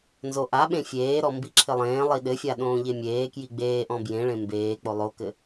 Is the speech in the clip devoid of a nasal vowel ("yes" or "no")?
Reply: no